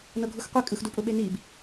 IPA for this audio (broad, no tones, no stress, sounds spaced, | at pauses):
n ɤ ɡʱ u x qʷ e kʼ ɯ x d u pʼ ʊ ɓ e n i b